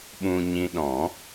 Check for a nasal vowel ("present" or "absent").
present